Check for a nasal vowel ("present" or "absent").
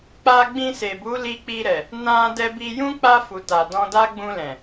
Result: present